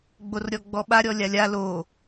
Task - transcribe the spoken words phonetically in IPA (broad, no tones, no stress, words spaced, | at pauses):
ɡ͡borɾʲɔɡ͡bɔɓa ɾʲɔlʲalʲa lo